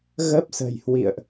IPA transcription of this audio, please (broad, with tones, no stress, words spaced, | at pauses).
ɣə˦˥p̚sə̤˨˩jhwḭ˧˨ə̯ʔ